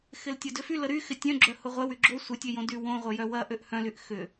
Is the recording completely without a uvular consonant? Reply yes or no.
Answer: no